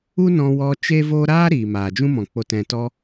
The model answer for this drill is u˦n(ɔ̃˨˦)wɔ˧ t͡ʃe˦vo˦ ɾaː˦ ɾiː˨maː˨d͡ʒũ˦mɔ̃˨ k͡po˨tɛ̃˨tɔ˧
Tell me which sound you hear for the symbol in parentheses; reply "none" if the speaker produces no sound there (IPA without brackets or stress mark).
ɔ̃˧